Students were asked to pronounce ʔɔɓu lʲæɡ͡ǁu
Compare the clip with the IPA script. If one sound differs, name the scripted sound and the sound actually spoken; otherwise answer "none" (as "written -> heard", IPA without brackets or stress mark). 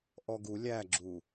ɓ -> ɡ